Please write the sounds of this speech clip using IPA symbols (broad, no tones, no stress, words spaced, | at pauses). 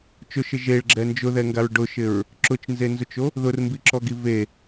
t͡ʃʊʃɪ ʒeɭɡ͡ǁɛ nd͡ʒʊðɛŋɡaɹ ɖʊʃɪɹ | ǁʊt͡ʃnzenzʊt͡ʃo | ðʊrmbiǁɔɡi ve